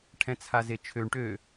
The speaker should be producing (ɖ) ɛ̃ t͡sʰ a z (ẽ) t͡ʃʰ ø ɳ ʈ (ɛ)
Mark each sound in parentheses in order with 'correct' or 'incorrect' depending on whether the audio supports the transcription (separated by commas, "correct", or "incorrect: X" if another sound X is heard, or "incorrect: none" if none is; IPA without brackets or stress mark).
incorrect: ʈʰ, incorrect: e, incorrect: ø